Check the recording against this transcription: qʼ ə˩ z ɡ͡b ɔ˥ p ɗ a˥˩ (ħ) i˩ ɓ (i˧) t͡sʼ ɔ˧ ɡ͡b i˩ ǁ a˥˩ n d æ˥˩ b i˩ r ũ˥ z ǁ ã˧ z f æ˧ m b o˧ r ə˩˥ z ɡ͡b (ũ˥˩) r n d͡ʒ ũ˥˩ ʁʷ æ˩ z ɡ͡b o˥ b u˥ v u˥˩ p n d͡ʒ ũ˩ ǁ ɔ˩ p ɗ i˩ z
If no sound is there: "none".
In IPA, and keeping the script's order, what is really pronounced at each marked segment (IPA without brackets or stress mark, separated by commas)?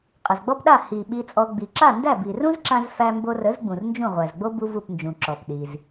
h, i˧, ũ˩